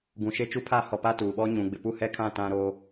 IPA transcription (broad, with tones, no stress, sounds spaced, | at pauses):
ɡ ũ˨ ʃ e˦ t͡ʃ u˦ pʰ aː˦ h ɔ˨ p a˦ t uː˨ ɓ ɔ˦ ɲ ũ˨ ɡ͡b ɪ˨ p u˦˨ h ɛ˦ kʰ ã˦˨ t ã˦ ɾ o˦